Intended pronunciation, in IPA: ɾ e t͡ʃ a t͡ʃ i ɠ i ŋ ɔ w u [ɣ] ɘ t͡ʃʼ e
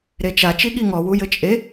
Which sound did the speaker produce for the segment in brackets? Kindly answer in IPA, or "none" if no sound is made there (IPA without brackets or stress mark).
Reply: j